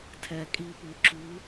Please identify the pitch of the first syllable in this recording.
low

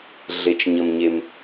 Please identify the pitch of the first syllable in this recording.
low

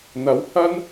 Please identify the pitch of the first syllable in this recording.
rising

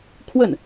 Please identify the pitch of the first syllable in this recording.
falling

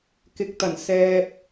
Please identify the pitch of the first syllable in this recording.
low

